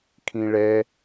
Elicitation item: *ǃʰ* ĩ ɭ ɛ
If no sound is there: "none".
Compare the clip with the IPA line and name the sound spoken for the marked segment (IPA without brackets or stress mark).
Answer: kʰ